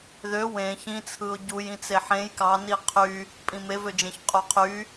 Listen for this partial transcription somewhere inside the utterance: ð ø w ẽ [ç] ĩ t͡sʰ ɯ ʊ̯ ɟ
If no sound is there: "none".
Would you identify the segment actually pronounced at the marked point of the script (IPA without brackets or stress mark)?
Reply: ç